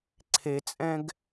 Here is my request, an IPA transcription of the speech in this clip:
ǀʰ e t͡sʼ ɛ̃ ɡ

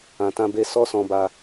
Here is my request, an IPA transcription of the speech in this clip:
ã˨ t ã˧ b e˧ s ɔ˦ s ɔ̃˧ b a˧

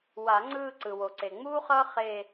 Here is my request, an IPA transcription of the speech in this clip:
w a˨˩˦ ŋ͡ǀ ɯː˥˧ ǀ ɯ˩ w o˩ ǀ e˩ ŋ͡m uː˥ χ ʌː˥ χ e˥˧

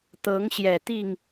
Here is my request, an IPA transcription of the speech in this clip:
t̪ ɤ˨˦ ŋ ɕ j ɛ˨˩ t̪ i˥˨ ŋ

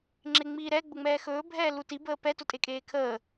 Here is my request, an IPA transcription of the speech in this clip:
ŋ͡ǁ e ŋ͡m iː ɾ ɛ ɡ͡b ʊ ŋ͡m ɛː x ɵː bʱ ɛː l u t i b əː p ɛ t ʊ tʼ e kʼ eː kʰ əː

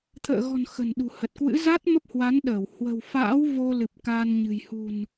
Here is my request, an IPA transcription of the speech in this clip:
t̪ʰ ə̰ː˧˨ ɣ ɔ̤˨˩ n x ə̤˨˩ n ɗ ṳ˨˩ h ə˨˩ t̚ k w ɨ̰˧˥ z a˦˥ t̚ m ə˦˥ p̚ h w a˨˦ n ɗ əː˧˩ w h w ə̤˨˩ w f a̰ː˧˥ w v o˧ l ɨ˨˩ p̚ k aː˧ n ɲ ɨ̤˨˩ j h ṳ˨˩ n

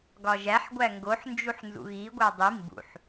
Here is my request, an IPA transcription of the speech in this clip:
ɡ ɒ ʒ æ ħ ɡʷ æ ŋ ɡ o ħ n d͡ʒ u ħ n z ṵ ɣ i ɡʷ æ dˤ i m b ṵ ħ

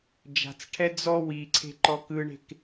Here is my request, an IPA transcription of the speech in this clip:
d͡ʒ a̤ t͡s ʈʰ ɛ d͡z ɔ w i ǀʰ e̤ ǃ ɔ k ɯ ɳ e̤ k

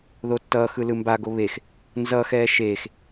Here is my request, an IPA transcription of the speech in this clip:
ð o tː ʌː x ɯ l ɯ m b a ɡ o β e x | n z ʌ x ɛː ʃ eː x

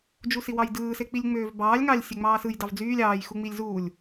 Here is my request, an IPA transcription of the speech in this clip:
d͡ʒ u s i w ɑ j d ɯː s e k͡p i lʲ ŋ͡m øː v b ɑː lʲ ŋ ɑ lʲ sʲ e ŋ͡m ɑː s ɯ j d ɑ v d͡z yː lʲ ɑː j x u ŋ͡m i lʲ z uː lʲ

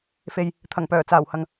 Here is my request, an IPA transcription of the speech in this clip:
f e˨ j | t̪ʰ ɐ˨˩ ŋ p œː˨˩ t͡s aː˨˩ w h ɐ˨ ŋ

